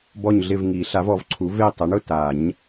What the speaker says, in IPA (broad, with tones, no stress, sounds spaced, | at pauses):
b ɔ˦˨ ɲ ɮ ɪ˦˨ v ŋ i˨˩˦ ɬ a˩˥ v ɔ˨˩˦ v ǀʰ u˩˥ v e˦˨ tˤ ɛ˩˥ ɳ ʊ˦˨ t a˨˩˦ ɲ